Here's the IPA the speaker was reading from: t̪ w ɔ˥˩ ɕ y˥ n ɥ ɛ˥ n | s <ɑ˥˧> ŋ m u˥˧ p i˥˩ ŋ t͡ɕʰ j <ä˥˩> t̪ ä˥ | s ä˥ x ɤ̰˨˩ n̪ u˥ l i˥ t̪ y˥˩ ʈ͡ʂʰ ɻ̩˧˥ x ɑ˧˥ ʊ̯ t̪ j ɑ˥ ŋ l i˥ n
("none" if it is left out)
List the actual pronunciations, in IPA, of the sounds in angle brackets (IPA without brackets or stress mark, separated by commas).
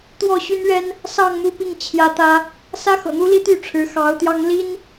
ɑ˥˧, ä˥